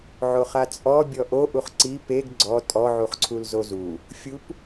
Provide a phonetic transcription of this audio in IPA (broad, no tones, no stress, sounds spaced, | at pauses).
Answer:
ʕ o χ a t͡sʼ ɔ bʲ ɔ ʔ o ʔ u χ ǀ i p e ɡ ɡ͡ǀ ɔ tʼ ɔ ʕ u χ ǀʰ u l z o z u | fʲ u p